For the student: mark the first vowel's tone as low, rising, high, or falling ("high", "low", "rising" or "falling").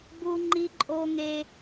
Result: high